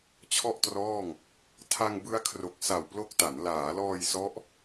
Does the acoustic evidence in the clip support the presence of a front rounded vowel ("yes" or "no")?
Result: no